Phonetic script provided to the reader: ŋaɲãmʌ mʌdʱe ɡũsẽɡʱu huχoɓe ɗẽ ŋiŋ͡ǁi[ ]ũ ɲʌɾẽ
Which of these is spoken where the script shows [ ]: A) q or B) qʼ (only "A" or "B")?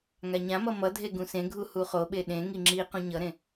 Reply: A